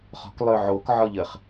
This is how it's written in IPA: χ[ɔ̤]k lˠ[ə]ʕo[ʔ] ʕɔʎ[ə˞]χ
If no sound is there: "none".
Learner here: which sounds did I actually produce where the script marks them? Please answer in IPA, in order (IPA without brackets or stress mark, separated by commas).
ɔ̤, ø, k, ə